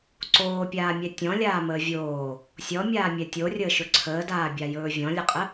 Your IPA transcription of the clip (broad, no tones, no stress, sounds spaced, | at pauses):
ǀ oː pʲ aː mʲ ɛ tʲ ɔ̃ lʲ aː m əː vʲ oː | sʲ ɔ mʲ aː mʲ ɛ tʲ o rʲ əː ʃ ɵ ǀʰ əː d aː bʲ a j ɵː vʲ ɔ̃ lʲ ə qʼ ə